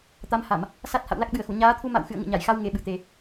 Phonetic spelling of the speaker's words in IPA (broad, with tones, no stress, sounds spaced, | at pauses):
t̪ a˨˦ m h a˧˩˨ m | s a˦˥ t̚ h a̰˧˨ w l a˦˥ k̚ ɓ ɨ˨˩ ə̯ x u˧˩ ɲ aː˨˦ t̪ʰ u˧ m a̰˧˨ w x ɨ̰˧˨ ə̯ ŋ ɨ̰˧˨ ɲ a˧˩ j x a˧ w ŋ e˨˩ ɓ ɨ˧˩ t̪ e˨˩